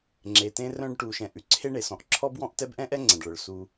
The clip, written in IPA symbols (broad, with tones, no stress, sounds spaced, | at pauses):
ŋ͡ǁ e˨ t ẽ˦ r œ̃˦ ɖ ʈ u˨ ʃ ɛ̃˨ ʔ ʉ˨ ǀʰ e˦ ɳ e˩ s ɔ̃˨ ʔ ǁʰ ɔ˥ b w ɔ̃˦ ʔ t ɛ˦ b ʔ ɛ̃˥ ʔ ɛ˥ ŋ͡ǀ ɛ̃˩ ɖ ɭ œ˩ ɭ s u˨